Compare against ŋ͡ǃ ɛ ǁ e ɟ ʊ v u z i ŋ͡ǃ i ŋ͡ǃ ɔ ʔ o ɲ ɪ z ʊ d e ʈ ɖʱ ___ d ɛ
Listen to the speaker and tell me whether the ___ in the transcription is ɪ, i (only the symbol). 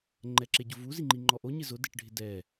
ɪ